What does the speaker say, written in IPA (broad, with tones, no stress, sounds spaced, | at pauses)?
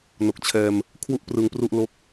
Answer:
n o˨˩ k̚ t͡ɕʰ ɛː˧ m | kʰ w u˥˩ ʔ p r ɯ˧ ŋ p r u˥˩ ʔ l o˦˥ k̚